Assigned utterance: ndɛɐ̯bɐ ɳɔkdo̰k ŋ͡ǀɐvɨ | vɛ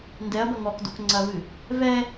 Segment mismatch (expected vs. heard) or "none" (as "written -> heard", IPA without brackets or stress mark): ɳ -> ŋ